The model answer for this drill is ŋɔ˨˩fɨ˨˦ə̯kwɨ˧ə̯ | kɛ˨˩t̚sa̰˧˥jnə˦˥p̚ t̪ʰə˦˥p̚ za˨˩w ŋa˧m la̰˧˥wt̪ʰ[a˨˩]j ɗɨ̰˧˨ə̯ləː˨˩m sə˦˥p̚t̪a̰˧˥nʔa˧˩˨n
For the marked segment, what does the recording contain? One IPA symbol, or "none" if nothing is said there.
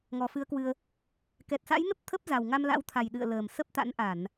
a˨˩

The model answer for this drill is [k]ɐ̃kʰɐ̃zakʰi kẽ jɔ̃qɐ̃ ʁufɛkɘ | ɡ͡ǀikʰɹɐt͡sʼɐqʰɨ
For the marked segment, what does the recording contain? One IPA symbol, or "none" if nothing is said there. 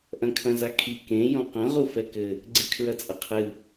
ʔ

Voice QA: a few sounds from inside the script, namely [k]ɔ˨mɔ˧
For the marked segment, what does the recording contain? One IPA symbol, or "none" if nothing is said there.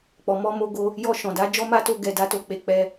k͡p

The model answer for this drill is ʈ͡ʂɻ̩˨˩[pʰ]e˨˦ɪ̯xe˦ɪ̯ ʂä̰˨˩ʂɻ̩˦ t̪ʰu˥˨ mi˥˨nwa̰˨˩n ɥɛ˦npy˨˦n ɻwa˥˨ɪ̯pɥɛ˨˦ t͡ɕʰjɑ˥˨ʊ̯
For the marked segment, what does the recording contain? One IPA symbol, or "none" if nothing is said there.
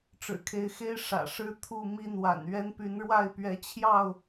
kʰ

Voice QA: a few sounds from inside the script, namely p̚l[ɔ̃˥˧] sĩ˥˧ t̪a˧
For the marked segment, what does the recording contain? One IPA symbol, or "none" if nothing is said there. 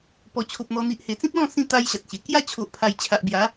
ɔ̃˥˧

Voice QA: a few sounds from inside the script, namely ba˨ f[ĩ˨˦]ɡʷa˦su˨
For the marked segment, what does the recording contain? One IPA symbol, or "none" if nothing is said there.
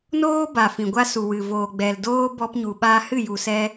ĩ˨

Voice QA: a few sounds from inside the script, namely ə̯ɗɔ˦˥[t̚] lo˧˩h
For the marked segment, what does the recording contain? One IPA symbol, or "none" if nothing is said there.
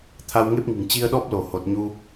p̚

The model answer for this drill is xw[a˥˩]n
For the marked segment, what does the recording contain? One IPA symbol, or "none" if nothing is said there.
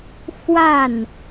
a˥˩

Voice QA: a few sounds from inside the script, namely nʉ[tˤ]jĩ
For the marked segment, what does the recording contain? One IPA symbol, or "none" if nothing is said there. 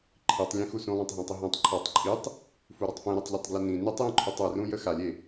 tˤ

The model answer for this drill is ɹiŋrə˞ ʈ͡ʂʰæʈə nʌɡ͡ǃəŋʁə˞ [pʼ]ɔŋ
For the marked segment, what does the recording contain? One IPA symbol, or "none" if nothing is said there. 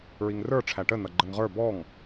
b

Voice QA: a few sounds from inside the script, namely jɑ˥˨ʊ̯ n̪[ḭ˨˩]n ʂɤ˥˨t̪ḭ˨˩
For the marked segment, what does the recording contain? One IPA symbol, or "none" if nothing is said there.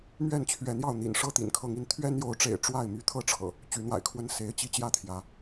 ḭ˨˩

